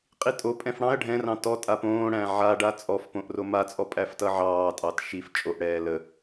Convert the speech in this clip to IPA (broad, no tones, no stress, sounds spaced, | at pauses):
qʼ i tʼ o pʼ ɛ̃ f ɽ ɑ̃ ɐ̯ ɖʱ ɛ̃ r ɑ̃ t ɔ tʼ a p õː ɽ æ̃ ʕ a ɖ a t͡sʼ ɔ f p õ ʔ r o m a t͡sʼ ɔ pʼ æ f t ʌ ʕ ɑː tʼ ɑ t ʃ i f t͡ʃʼ o ʔ ɽ ɛː l ə